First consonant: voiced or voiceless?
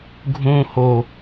voiced